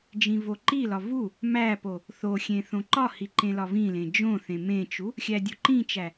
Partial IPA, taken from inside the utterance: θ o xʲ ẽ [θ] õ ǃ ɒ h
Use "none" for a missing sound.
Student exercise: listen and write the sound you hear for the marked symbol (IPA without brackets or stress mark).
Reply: θ